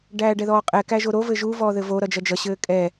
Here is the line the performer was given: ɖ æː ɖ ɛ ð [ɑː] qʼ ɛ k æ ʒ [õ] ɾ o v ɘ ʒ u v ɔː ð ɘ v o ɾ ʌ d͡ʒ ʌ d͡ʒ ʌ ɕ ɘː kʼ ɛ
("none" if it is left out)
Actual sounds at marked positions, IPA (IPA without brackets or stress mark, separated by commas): ɔː, o